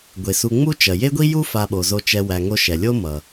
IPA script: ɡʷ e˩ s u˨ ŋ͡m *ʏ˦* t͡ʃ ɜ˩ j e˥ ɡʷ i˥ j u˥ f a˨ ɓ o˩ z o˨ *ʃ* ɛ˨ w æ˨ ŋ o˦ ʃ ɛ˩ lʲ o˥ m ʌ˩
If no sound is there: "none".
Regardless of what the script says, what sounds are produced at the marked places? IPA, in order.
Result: u˦, t͡ʃ

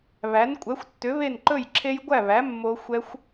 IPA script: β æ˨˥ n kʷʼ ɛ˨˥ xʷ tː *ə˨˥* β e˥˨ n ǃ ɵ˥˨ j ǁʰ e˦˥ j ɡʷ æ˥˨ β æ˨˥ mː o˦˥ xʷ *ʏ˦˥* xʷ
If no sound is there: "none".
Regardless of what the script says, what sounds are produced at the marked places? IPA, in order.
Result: ʏ˨˥, ɛ˦˥

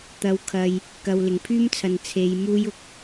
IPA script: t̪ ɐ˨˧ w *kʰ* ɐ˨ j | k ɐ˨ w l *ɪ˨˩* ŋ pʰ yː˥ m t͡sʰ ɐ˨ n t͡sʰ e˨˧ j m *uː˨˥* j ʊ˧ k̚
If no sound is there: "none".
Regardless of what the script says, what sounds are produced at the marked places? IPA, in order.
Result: kʰ, ɪ˨˩, uː˥

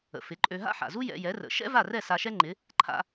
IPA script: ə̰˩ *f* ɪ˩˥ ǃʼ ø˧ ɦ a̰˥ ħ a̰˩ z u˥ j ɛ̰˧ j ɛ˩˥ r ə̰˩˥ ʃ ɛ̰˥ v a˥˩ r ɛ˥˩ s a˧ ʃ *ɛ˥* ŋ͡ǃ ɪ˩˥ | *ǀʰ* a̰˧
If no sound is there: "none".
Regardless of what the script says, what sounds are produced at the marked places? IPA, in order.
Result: f, ɛ˥, ǃʰ

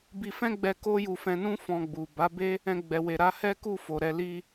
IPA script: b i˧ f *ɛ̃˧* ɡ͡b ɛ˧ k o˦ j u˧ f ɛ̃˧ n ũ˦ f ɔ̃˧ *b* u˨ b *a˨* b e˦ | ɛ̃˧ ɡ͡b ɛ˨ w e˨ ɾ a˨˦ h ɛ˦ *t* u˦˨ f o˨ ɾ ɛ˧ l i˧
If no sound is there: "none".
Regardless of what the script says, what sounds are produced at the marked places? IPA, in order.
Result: ɛ̃˦, ɡ͡b, a˨˦, k

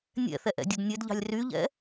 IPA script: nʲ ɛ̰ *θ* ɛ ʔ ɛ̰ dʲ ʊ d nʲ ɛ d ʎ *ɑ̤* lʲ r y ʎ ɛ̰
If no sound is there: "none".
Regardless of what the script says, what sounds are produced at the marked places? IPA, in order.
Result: θ, ɑ̤

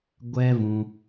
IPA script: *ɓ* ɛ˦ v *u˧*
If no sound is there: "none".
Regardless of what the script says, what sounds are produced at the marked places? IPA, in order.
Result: ɡʷ, ũ˧

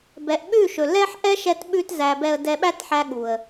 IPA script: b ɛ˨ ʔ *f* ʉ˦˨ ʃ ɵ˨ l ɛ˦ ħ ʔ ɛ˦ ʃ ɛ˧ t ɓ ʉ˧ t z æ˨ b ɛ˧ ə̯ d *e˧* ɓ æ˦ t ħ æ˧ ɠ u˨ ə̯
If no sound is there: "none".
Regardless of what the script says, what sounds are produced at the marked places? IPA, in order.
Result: ɓ, ɛ˧

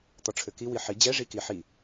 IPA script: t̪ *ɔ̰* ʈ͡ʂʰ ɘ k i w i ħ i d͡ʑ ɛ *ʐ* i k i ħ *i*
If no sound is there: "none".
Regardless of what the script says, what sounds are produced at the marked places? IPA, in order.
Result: ɔ, ʐ, i

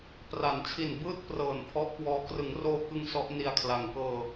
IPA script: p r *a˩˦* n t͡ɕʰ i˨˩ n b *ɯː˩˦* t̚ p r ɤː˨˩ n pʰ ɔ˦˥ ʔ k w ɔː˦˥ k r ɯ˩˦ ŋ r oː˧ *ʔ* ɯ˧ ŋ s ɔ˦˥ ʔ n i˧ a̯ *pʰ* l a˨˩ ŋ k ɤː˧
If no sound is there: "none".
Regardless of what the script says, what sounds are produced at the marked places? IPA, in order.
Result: a˩˦, ɯː˥˩, k, kʰ

